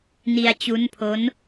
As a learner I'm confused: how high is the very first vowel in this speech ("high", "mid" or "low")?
high